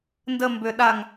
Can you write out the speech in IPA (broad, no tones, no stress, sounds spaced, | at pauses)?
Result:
n d ə m b ʏ ɗ a ŋ